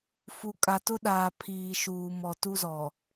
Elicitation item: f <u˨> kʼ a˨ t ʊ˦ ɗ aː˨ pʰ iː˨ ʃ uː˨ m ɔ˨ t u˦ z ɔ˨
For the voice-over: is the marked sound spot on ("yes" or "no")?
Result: yes